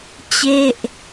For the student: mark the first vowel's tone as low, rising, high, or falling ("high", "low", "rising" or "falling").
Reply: falling